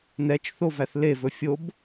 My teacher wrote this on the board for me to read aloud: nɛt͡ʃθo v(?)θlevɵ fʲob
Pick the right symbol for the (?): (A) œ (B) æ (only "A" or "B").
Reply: B